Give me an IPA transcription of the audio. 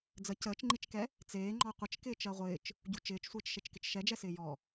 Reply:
d͡z ə c əː t͡ʃ ŋ͡ǃ i t͡ʃ k ɛ | t͡s eː ŋ͡ǃ ɔ qʷ ə t͡ʃ k ɪː t͡ʃ ɜ ʁʷ ɪː t͡ʃ | ɟ u t͡ʃ ɪː t͡ʃ sʷ eː t͡ʃ ʃ e t͡ʃ k ɪ t͡ʃ ʃ ɛ d͡ʒ ɛ s ɪː j ɔ

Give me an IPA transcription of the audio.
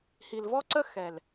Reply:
h i˨ l v ɔ˦ ǀ ə˦ x ɛ˨ l

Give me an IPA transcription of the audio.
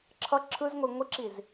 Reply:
ǁʰ ʌ ǁʰ ɯ z ŋʷ i ŋʷ i ǁ i z

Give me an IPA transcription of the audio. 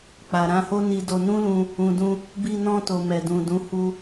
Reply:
k͡p a˨ ɾ ã˧ h o˦ n i˧ d o˧ n ũ˦ l ũ˧ | ũ˨ d ũ˧ | b i˧ n ɔ̃˧ t o˨ m ɛ˨ d ũ˨ d ũ˨˦ h u˧

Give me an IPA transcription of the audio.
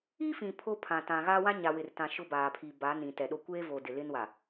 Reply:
i˦ f ĩ˨ pʰ o˦ pʰ ã˨ t ã˨ ɣ a˦ w ã˦ ɲ a˨ w ɪ˨ r t ã˨ ʃ ʊ˦ b aː˨ pʰ i˨ b a˨˦ n ĩ˨ t ɛ˨ ɗ o˦ kʷ eː˦ v o˨ d ɪ˨ l ɪ˦ n w a˨

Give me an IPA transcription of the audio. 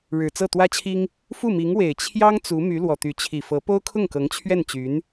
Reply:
ɻ ɻ̩˨˩ t͡s ɤ˥˩ t̪ w ä˥ t͡ɕʰ i˥ ŋ | f u˥˩ m i˧˥ ŋ w e˨˩ ɪ̯ t͡ɕʰ j ɑ˥ ŋ t͡s u˧˥ m y˧˥ l w ɔ˨˩ t̪ y˧˥ t͡ɕʰ i˨˩ f ɤ˧˥ p o˥ ʊ̯ kʰ ʊ˥˩ ŋ k ɤ˧˥ ŋ t͡ɕʰ ɥ ɛ˥˩ n t͡ɕ y˧˥ n

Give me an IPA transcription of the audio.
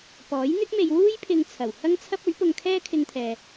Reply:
p ɔː˨˥ j n̪ ɪ˥ k̚ m e˧ j w uː˥ j pʰ ɪ˧ ŋ t͡sʰ ɐ˨˩ w h ɐ˥ ŋ t͡sʰ ɐ˥ p̚ ɵ˨˥ ɥ p ʊ˧ ŋ kʰ ɛː˥ kʰ ɪ˧ ŋ t̪ʰ ɛː˨

